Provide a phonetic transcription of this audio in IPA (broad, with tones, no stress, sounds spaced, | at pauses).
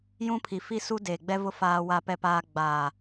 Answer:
j ũ˦ pʰ i˨ f i˦ s u˦ d eː˨ ɡ͡b ɛ˦ v ʊ˦ f aː˦ w a˦ p ɛ˦ p aː˦ ɡ͡b aː˨